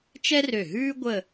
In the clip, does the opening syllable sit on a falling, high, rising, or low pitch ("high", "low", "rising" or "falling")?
high